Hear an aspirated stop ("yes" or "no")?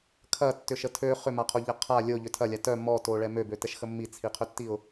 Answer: yes